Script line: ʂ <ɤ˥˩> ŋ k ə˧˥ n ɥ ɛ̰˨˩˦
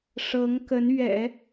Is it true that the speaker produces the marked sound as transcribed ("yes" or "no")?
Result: no